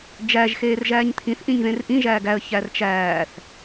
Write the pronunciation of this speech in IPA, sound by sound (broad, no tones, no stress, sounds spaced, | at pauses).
d͡ʒ æ ʒ x eː r ʒ æː ɲ t̪ʰ ĩ θ ʔ ĩ ɲ ð ẽ r ʔ ĩ ʒ æː ɡ æ ə̯ ç æ r t͡ʃ æː θ